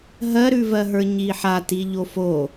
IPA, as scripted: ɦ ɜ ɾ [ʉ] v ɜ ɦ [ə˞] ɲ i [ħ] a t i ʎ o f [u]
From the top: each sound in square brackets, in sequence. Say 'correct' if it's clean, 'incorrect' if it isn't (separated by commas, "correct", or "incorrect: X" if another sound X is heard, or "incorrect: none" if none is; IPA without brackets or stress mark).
correct, correct, correct, incorrect: o